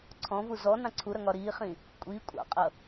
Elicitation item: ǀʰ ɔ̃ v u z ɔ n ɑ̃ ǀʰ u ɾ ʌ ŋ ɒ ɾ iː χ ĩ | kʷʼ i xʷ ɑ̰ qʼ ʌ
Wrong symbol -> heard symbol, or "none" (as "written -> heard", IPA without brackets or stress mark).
xʷ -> kʷʼ